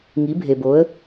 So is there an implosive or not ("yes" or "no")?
no